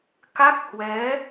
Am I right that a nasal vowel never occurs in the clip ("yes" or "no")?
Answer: yes